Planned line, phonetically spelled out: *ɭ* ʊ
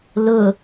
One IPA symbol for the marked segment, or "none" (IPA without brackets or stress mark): l